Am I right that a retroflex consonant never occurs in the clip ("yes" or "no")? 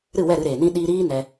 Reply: yes